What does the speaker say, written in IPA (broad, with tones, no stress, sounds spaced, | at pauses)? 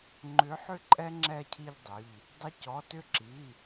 ŋ͡ǃ ʏ˨˥ ħ ʏ˦ ǃʼ ɛ˦ ŋ͡ǁ ɛ˦˨ cʰ i˦˨ ʎ dˤ ʏ˩˧˩ ʎ | dˤ ə˨˥ c ɔ˩˧˩ t ʏ˦˨ ǁ i˩˧˩